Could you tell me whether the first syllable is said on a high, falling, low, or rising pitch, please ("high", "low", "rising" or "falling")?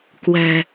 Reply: low